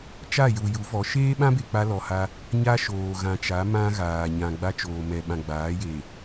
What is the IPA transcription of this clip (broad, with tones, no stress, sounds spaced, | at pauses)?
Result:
t͡ʃ a˦˨ j u˨ j u˨˦ v ɔ˨˦ ʃ eː˦ ɓ ã˦ b e˨ k͡p a˦ l ɔ˨ h a˦ | ɲ a˦ ʃ oː˨ ɣ ã˨ t͡ʃ a˨˦ m ã˦ ɣ aː˨ ɲ ã˨ ɡ͡b a˦ t͡ʃ oː˨ m ɛ˨ ɓ ã˨ ɡ͡b aː˨˦ j e˨